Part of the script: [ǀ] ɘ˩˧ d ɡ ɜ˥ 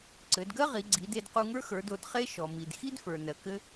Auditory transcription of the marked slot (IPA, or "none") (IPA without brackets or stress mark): ǀ